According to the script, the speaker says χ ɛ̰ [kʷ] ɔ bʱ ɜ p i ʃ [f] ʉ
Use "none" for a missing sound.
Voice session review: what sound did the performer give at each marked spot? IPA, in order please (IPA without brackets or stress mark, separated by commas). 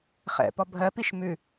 p, m